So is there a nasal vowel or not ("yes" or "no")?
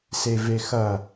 no